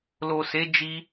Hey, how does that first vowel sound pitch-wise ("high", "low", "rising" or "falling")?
low